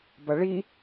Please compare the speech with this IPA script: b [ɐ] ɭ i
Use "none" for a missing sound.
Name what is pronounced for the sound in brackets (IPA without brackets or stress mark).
ɐ